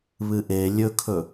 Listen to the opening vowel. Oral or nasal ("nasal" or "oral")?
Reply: oral